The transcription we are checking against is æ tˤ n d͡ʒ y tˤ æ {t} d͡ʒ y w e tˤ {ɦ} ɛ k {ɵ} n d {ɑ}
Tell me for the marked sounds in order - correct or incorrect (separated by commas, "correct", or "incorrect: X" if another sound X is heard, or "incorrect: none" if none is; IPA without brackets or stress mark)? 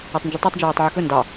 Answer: incorrect: tˤ, incorrect: ʕ, correct, correct